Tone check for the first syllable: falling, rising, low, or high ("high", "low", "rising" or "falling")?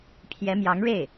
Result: rising